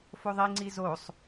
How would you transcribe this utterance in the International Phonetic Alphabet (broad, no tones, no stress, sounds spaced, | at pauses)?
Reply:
f o ðˤ i ŋ͡ǀ i z o sˤ